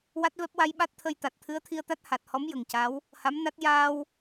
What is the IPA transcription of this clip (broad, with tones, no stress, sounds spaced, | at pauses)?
w a˦˥ t̚ v ɛ˦˥ p̚ w a˧ j ɓ a˦˥ t̚ t̪ʰ ə˧ j t̪ a˨˩ t̚ t̪ʰ ɨ˧˥ ə̯ t̪ʰ i˧ ə̯ t̪ a˦˥ t̚ h a˨˩ t̚ h ɔ˧˥ m j ə˨˩ ŋ c a˧˥ w | h a˧˥ m n a˦˥ t̚ j aː˧ w